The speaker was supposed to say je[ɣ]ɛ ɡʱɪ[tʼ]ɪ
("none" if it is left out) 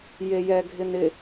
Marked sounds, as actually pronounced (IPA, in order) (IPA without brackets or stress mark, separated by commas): j, n